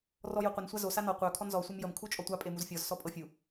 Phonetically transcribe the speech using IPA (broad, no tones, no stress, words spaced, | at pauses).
rɔjoqʷən sʷazo sanɔ qʷœ kʰɔnzɔ sʷɤmjəm kʰut͡ʃʼɔtʷa pʼemuzfʲɔz sɔpʼɤfʲu